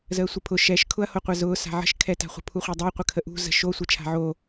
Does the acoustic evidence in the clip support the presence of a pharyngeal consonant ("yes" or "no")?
yes